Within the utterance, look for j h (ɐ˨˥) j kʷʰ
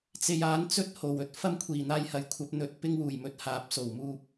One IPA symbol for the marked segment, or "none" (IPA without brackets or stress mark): ɐ˨˥